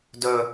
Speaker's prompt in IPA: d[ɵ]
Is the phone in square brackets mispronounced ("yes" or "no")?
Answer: no